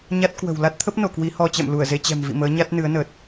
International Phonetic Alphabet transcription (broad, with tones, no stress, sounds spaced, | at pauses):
ɲ a˦˥ t̚ k w ə̤˨˩ w l a˦˥ t̚ t̪ʰ ə˦˥ p̚ n o˧˩ k w i˨˦ h ɔ˧ t͡ɕ ɛ̰˧˨ m l u˧˩ ə̯ z e˧ t͡ɕ ɛ̤˨˩ m v ḭ˧˨ m əː˨˦ ɲ a˦˥ t̚ n ɨ˨˦ ə̯ n əː˨˩ t̚